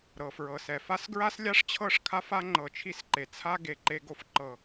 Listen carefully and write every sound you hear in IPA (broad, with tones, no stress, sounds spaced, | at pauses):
ɾ ɤ˨ f ɹ ɤ˨ s ɛ˨ f a˦ s ɡ ɹ a˦ s lʲ a˦ ʂ t͡ɕʰ ɤ˦˨ ʂ kʰ a˦ f a˦ ŋ͡ǃ ɤ˨ t͡ʃʰ i˦ s ǃ e˨ t͡sʰ a˦ ɡ e˨ ǃ e˦ ɡ o˦ f ǃ ɤ˦˨